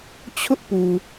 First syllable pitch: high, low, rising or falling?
high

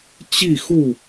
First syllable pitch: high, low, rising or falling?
falling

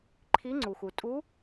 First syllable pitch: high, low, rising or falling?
rising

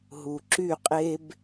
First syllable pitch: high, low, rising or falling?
low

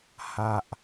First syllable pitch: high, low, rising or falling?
low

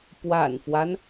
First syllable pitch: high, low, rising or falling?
low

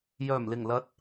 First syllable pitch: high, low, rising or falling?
low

